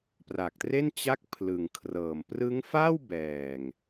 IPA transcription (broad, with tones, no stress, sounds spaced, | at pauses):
p r a˨˩ k̚ t r e˥˩ n t͡ɕ a˥˩ k̚ pʰ l ɯ˨˩ ŋ kʰ r ɤː˨˩ m p r ɯ˦˥ ŋ f a˥˩ w b ɛː˨˩ ŋ